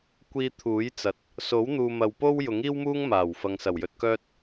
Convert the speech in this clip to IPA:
kʷiː˧t̪ʰuː˨˥jt͡sɐ˨t̚ | so˨˥wn̪uː˨mɐ˨wpo˥w jʊ˨˥ŋiː˥wmuː˥ŋ maː˨˩w fɐ˨ŋsɐ˨˩wjɵ˧t̚kœː˥t̚

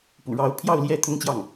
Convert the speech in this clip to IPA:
pṵ˨˩ɻɑ˧˥ʊ̯ pʰjɑ˥˧ʊ̯ljɛ˥˩ t̪ʰʊ˥ŋt͡ɕjɑ˥˩ŋ

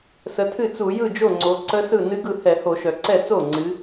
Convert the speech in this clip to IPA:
sə˩˧tʰɨ˥˩t͡su˧˩˧ jɯ˥˩d͡ʒo˥˩ŋ͡ǀo˩˧ ǀə˦˥sɯ˥˩ nɨ˦˥ɡɯ˥˩ hɛ˧˩˧ho˧˩˧ʃœ˩ ǀɛ˥˩ t͡so˥˩ŋ͡ǀɨ˩˧

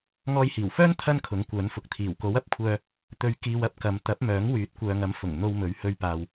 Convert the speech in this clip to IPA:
ŋɔː˧jhiː˨˩wfœː˥n t̪ʰɐ˥nkʰʊ˨˥ŋkʷœː˨˥nfʊ˨k̚ t̪ʰiː˨˩wko˨˥wɐ˨p̚kʷʰœː˧ | t̪ɵ˧ɥkiː˧wɐ˥p̚ kɐ˨˧m t̪ɐ˨˥p̚mœː˨˥ŋ wyː˨˥t̚kʷœː˨ŋɐ˨˥m fʊ˨˩ŋ n̪o˧w mɵ˨˥ɥhɵ˧ɥpaː˨w

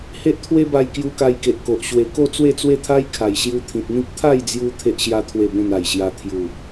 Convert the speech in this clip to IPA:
he˦ʔt̪ʰwe˦ba˧j kju˧ka˧jke˨ʔko˨ʔ ɕwe˨˩ko˥˧ t͡swe˥˧t͡swe˥˧t̪ʰa˦j kʰa˨˩jɕju˧t̪ʰĩ˨t̚n̪ĩ˦k̚ t̪ʰa˥˧jd͡zju˧ t̪ʰe˦ʔɕja˦ t̪ʰwe˥˧bẽ˥˧n a˨˩jɕja˧ t̪ʰju˨˩

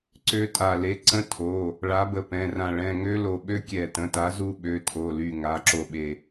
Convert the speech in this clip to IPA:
ǀø˦˥ tʼa˧˩le˨˥ ǀə̃˦˥ tʰo˩˧˩ | ɭa˨˥bə˧˩pɛ̃˩˧˩rã˧˩ ɭɛ̃˩˧˩ŋø˦˥lo˧˩ɓø˦˥ kʲɛ˧˩tə̃˩˧˩ta˨˥ zu˦˥ɓø˩˧˩tʰo˩˧˩ly˧˩ ŋa˩˧˩ǁo˧˩ɓe˧˩

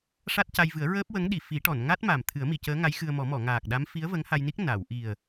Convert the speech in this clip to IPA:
ʂa˦˥t̚ca˧jvɨ˨˩˦ə̯ ɹəː˦˥p̚wə˧˥ŋɗi˨˩˨ fi˨˩˦ʈɔ˨˩˨n ŋa˦˥t̚ ma˨˩m t̪ʰɨ˨˩˦ə̯mi˨˩˨cəː˧˥ŋa˧˥j xɨ˧ə̯mɔ˨˩˦ mɔ˨˩˨ŋaː˨˩k̚ɗa˧˥m fi˧˥ə̯və˧˥ŋha˧jni˦˥k̚ na˨˩˨w ʔi˨˩ə̯

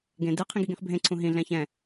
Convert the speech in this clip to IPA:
ɡẽ dɨ qʰĩɡiɡĩχbʱẽ ǀʰũɦĩ ɮɛ̃çɛ̃

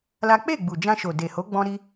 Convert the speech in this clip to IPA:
la˦ k͡pe˦˨ɡ͡bu˨ d͡ʒã˧ʃo˨ de˨ho˨˦ ɡ͡bɔ̃˦ɾi˦

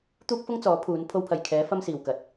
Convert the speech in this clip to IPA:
t̪uː˥k̚fʊ˥ŋt͡sɔː˨˥ pʰuː˨˥n pʰo˧wpʰɐ˨j kʰɛː˨˥ fɐ˥msiː˨wkɐ˨˥t̚

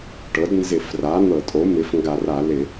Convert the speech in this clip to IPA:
ʈɤ˩˥dnzɪ˧˩˧fra˩˥ n̪ɤ˧˩˧tʼo˩˥ mɪ˩˥fŋɡa˧˩˧ra˧˩˧ lɪ˧˩˧

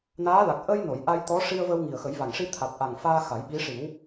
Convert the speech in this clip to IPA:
naː˧˥la˨˩k̚ ʔə˧j no˨˩˨jʔa˧jt̪ɔ˧˥ ʂi˧ə̯və˧w ŋi˨˩ə̯xə˨˩˦jva˨˩ŋʂi˧ t̪ʰa˨˩t̚ʔa˨˩ŋ faː˧ xa˨˩˦jɓi˧˥ ʂi˨˩˦w

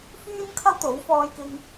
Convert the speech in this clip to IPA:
fyː˥nkʰɐ˥w t̪o˨˥wfɔː˧jkɪ˧ŋ

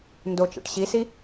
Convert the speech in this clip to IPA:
ndot͡ʃa̰ʈ ɕisi

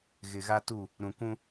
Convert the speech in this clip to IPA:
ɣɪ˨ɣa˦tu˦˨ | ɾũ˨ kũ˦

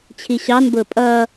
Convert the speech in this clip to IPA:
t͡ɕʰiɕɑnbʊː pʼʌː

